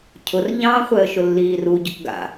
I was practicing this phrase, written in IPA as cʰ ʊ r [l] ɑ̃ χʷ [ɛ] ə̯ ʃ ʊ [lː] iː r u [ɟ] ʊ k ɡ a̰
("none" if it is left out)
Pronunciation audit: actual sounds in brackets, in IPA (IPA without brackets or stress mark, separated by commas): ʎ, ɛ, lː, ɟ